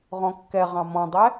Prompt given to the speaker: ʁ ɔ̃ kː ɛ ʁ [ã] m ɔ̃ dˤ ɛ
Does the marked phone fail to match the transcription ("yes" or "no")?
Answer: yes